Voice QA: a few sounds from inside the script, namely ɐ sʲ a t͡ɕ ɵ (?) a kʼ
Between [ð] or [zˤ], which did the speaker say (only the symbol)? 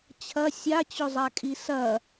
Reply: zˤ